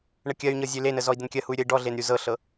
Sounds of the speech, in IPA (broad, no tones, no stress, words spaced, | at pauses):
ɳəkʲɜy̯ɲɤ zʲølenə zɔi̯dənkʲɜhuy̯ ɾʲəi̯ɖɔɮen ɾʲuzɤɬɤ